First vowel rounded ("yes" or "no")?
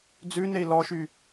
yes